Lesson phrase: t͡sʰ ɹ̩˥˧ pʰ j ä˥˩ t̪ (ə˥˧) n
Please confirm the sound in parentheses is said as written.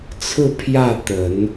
no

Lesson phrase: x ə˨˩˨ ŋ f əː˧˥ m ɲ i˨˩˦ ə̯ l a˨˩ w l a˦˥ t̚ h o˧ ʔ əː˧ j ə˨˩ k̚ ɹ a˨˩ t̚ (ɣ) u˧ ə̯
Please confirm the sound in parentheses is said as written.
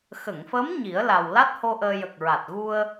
yes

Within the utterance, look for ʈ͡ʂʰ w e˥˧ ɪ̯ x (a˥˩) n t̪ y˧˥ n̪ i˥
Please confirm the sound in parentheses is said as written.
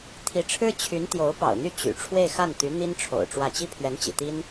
yes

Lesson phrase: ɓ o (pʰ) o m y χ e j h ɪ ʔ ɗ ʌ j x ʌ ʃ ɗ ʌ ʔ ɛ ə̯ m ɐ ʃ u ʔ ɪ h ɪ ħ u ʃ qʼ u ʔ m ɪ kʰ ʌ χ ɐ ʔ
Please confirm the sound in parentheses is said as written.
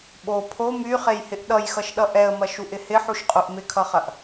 yes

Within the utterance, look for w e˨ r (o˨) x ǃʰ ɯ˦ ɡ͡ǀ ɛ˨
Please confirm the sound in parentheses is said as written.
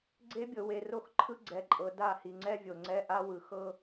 no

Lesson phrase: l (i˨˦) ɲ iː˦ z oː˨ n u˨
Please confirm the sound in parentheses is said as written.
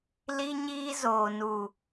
no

